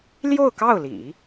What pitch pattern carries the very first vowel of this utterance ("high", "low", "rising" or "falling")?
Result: falling